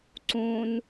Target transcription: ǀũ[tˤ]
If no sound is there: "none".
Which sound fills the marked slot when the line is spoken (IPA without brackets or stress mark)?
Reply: n